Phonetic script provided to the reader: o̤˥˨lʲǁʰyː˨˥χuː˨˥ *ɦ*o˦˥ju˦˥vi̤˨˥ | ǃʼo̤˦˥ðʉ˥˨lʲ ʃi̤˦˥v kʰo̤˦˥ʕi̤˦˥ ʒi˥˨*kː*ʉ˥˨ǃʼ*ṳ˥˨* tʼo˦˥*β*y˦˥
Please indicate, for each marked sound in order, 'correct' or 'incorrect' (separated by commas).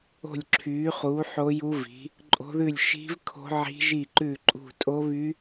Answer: incorrect, incorrect, correct, correct